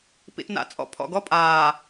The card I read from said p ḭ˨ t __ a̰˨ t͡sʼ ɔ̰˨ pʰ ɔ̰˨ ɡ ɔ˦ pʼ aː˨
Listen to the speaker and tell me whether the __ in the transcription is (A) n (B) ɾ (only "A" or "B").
A